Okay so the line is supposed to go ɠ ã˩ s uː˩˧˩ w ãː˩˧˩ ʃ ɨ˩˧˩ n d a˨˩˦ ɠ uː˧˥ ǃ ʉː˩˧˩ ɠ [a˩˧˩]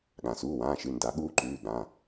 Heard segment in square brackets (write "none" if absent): ã˩˧˩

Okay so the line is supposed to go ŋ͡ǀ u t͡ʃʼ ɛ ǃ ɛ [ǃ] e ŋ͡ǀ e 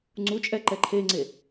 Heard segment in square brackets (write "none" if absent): ǃʰ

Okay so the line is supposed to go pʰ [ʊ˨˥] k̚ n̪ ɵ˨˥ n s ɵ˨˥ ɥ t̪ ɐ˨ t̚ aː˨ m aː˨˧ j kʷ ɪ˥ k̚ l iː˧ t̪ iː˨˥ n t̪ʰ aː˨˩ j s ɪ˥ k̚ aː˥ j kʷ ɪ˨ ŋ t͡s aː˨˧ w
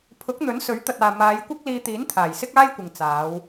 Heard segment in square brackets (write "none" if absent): ʊ˨˥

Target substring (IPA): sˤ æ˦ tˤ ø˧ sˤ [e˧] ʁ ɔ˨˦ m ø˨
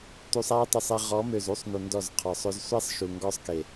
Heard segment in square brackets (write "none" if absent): e˧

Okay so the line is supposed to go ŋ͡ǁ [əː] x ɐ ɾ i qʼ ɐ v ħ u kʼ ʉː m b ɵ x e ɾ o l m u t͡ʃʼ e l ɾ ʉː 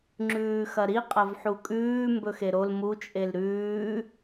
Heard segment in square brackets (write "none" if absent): ʉː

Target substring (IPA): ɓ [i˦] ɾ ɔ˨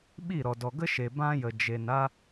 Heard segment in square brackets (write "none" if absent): i˦˨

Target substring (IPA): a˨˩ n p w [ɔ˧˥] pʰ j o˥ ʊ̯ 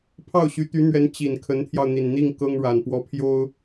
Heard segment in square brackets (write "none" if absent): ɔ˧˥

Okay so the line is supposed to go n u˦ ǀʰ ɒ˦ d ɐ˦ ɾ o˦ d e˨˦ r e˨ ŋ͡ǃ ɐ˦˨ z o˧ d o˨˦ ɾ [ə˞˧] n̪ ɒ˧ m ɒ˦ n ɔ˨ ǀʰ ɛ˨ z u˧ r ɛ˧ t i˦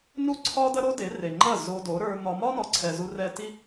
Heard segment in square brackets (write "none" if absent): ə˞˧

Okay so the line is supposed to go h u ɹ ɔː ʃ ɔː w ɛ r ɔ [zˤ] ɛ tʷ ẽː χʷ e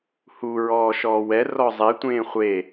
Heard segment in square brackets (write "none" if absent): zˤ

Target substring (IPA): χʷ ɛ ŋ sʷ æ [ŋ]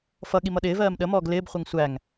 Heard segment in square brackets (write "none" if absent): ŋ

